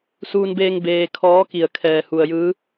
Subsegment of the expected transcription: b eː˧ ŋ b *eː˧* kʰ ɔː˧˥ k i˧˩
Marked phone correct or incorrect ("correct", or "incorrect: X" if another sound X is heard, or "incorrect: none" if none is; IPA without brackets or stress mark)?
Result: correct